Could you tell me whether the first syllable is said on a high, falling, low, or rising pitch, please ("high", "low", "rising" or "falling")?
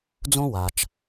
high